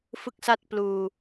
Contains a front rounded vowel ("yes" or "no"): no